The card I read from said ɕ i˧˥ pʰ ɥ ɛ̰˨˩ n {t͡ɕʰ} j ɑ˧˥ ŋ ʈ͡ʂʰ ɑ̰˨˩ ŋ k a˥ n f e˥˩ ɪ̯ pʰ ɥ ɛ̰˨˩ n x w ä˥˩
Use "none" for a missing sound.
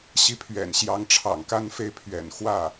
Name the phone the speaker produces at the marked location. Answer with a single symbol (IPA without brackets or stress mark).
ɕ